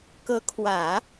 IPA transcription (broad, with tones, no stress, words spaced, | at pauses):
kɤ˧˥kʰwä˨˩˦